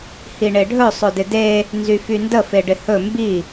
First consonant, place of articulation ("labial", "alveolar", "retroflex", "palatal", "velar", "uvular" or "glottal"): glottal